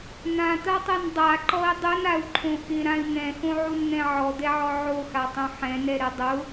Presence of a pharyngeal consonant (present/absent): present